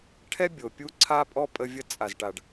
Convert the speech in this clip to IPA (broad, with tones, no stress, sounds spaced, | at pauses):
ʈʰ ɛ˦ bʲ o˨ pʲ u˦ ǀʰ a˦ pʼ ɔ˦ pʼ ə˦ vʲ ə˦ t͡sʼ a˨ z ʈ a˨ ɖ